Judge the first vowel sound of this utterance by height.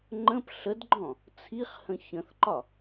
mid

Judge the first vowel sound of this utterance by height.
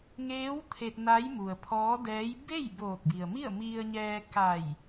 mid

